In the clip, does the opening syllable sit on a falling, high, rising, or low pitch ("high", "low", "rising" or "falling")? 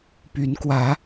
rising